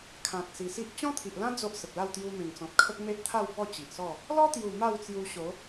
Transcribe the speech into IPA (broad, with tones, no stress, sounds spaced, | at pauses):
kʰ ã˨ t̚ s i˨˩ s i˦ ʔ t͡ɕ ɔ̃˦ t̪ʰ i˨ ʔ l ã˦ d͡z o˦ ʔ s ə˨ p̚ l a˥˧ w t̪ j u˧ m ẽ˨˩ ŋ t͡s ɔ̃˨ t̚ kʰ ə˦ k̚ m e˦ ʔ t̪ʰ a˥˧ w b ɔ˥˧ t͡ɕ i˨ ʔ s ɔ˥˧ | l ɔ˦ t̪ j u˨˩ m a˥˧ w t͡s j u˧ ɕ o˨˦